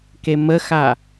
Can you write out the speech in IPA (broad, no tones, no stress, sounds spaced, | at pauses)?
k e m ə x a